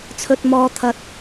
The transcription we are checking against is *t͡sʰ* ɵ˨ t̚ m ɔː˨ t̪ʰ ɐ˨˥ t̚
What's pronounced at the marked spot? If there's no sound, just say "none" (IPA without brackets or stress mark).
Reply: t͡sʰ